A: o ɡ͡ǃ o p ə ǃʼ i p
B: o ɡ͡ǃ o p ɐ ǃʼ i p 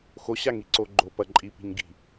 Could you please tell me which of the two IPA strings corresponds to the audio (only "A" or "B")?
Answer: B